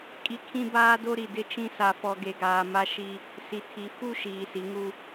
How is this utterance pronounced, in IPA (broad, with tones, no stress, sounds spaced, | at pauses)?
kʼ i˨ kʰ ĩ˦ b aː˦ d o˦ ɾ i˨ d ɪ˦ t͡ʃ ĩ˦ s a˨ f ɔ˨ ɡ e˨ ɡ aː˨ m a˦ ʃ i˦ | s i˨ tʰ i˨˦ f u˦ ʃ iː˨ s i˨˦ ŋ u˦